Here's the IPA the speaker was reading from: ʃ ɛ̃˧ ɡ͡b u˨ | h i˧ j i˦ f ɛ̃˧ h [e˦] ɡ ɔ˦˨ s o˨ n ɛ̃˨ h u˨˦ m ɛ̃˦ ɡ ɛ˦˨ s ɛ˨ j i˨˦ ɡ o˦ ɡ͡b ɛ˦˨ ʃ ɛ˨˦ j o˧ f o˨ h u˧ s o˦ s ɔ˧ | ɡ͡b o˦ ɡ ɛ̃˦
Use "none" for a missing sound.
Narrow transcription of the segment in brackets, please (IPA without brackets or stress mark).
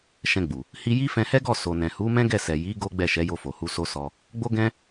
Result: ɛ˦